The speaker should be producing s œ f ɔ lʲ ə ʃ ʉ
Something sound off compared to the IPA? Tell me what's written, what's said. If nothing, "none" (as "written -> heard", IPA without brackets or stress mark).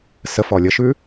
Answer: œ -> ə